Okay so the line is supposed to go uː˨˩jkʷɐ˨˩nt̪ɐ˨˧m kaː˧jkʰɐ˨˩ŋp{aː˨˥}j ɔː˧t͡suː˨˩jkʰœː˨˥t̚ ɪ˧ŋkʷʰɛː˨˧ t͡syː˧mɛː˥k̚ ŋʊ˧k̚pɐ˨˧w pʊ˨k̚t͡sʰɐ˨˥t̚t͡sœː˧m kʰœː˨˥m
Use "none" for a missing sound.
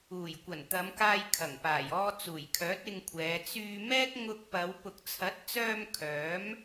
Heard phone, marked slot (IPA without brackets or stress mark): aː˨˩